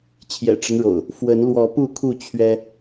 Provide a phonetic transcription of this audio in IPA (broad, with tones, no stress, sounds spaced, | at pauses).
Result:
t͡ɕʰ j ɛ̰˨˩ ʈ͡ʂ ə˦ n ɻ o̰˨˩ ʊ̯ | f w ə˨˦ n l w ɔ˨˦ p u˥˨ kʰ u˥˨ t͡ɕʰ ɥ ɛ˦